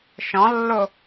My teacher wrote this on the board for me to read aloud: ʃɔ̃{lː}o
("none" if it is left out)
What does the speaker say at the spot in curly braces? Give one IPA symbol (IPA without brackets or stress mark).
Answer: lː